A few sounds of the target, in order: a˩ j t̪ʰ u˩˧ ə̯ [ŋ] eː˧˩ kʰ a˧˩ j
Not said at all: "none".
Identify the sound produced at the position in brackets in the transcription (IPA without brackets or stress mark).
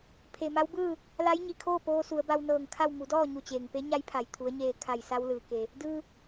ɲ